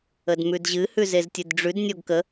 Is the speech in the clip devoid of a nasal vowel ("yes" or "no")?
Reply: yes